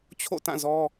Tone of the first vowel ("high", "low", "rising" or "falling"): falling